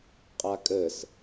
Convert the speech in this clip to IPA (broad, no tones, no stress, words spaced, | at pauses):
qʼakʼəs